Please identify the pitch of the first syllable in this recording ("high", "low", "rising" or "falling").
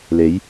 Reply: rising